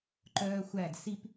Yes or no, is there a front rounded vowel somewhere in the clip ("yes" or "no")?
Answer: yes